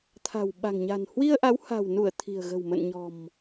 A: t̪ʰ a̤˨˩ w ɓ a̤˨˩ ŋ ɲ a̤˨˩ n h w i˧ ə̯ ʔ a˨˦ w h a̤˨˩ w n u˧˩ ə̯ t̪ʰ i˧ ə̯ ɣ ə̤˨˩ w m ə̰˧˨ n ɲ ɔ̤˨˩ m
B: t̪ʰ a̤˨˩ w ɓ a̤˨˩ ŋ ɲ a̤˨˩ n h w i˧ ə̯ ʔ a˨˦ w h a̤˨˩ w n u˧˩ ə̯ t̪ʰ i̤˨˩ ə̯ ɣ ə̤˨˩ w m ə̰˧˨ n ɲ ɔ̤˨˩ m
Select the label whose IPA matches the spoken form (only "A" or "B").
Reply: B